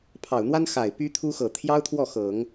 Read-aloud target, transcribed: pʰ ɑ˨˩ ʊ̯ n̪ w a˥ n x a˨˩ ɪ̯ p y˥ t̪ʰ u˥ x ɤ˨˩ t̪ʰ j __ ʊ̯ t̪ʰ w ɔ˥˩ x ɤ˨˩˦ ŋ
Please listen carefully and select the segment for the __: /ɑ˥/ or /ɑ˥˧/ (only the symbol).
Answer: ɑ˥